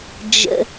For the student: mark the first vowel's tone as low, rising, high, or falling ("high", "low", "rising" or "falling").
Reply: low